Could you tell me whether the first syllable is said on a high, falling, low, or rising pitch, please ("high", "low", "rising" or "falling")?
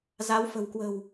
rising